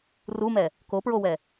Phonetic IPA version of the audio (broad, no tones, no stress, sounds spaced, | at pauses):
r u m ɛ | k o p ɹ o w ɛ